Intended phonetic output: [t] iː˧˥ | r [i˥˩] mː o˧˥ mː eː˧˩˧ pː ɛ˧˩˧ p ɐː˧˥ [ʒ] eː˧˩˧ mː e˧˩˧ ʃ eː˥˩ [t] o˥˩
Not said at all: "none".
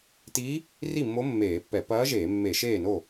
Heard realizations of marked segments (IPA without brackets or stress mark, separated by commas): t, i˥˩, ʒ, n